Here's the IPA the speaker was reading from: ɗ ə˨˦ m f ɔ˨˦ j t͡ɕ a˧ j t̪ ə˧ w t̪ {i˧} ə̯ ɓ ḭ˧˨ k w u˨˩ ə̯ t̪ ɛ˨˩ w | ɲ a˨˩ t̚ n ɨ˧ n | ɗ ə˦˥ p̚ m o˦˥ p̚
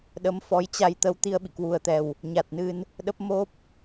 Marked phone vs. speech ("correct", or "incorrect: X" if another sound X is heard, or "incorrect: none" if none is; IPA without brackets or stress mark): correct